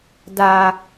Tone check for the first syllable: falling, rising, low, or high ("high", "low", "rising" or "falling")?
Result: low